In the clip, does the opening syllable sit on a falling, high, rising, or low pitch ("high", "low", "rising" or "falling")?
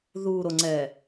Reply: low